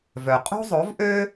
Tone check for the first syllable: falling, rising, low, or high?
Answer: low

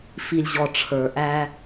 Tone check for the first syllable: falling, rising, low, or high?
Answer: low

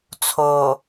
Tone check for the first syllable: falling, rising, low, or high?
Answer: low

